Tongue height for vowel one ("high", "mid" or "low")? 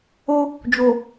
mid